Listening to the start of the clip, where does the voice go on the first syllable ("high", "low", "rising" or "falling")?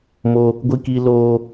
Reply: high